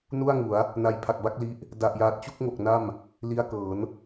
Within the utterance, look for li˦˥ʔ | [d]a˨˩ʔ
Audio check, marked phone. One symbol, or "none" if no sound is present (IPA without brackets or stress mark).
d